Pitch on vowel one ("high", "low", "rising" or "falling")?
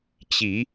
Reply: low